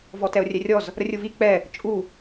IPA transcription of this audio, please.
v ɔ t ɛ o̯ rʲ ɛ rʲ ɔ z | ɾ ə rʲ u v i k͡p ɛ | t͡ʃʼ u

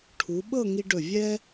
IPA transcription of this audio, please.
ʈʰ u˩˧ ɓ ɤ˥˧ ŋ i˧ ɖ ɵ˧˩ vʲ ɛ˥

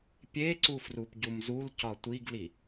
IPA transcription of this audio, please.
pʲ e ǀ u f r u p ɟ u m z u l c ɒ tʷ i ɡ l i

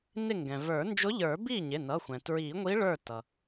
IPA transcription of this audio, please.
n ɪ˥˩ ŋ ɡ ɛ̃˩ v ə˞˨˩˦ n d͡ʒ ʊ˧˥ ʎ ə˞˨˩˦ b i˥˩ ɲ ɪ˩˧˩ n ʌ˩˧˩ xʷ ɛ̃˩ t ɹ i˨˩˦ ŋʷ i˧˥ ɭ ə˞˥˩ t ʌ˩

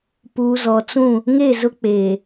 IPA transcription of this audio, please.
p uː˨ z ɔ˨ t͡s ũ˦˨ | ŋ e˦˨ z ʊ˦ k͡p eː˨

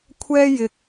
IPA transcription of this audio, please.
kʷʰ ɛː˥ j ɪ˨ k̚

